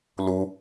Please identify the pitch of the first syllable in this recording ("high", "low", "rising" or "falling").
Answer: high